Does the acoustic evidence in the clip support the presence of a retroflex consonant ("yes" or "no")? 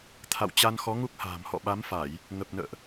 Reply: no